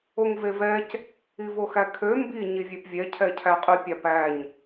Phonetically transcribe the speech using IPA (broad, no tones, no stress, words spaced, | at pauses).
oŋvevɛc | ivoxækʰø mbi ɲivʲepvʲɛ cʰɛcʰæqʼy pʲɑpæɲ